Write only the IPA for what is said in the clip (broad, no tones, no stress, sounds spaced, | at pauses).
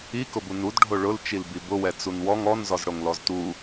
i k ʊ b u n u d ɖʱ o ɭ ʊ l t͡ʃ i l b i b ʊ w ɛ t͡s u n w ɔ ŋ ɔ n z ɔ z ɽ o ŋ l ɔ z t u